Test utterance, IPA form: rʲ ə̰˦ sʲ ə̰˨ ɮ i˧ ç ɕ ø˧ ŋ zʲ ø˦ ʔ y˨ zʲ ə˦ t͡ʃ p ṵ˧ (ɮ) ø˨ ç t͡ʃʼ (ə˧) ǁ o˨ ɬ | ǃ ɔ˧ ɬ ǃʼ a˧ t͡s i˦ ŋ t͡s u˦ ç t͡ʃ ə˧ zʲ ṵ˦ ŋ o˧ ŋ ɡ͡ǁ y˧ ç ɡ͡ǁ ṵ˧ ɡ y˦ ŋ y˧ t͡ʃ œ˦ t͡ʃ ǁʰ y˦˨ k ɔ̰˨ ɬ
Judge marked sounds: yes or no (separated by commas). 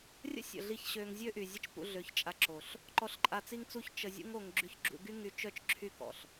yes, no